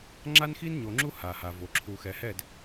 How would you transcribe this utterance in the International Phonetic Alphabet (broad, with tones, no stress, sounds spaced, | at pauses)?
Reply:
ŋ͡ǁ a˦ n x i˦ n ɲ o˨ ŋ͡ǁ u˦ h a˨ h a˨ v o˨ ǁʰ u˨ x ɛ˨ h ɛ˦˨ d